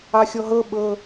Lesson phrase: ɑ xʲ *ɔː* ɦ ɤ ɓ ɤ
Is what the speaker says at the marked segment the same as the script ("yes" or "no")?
no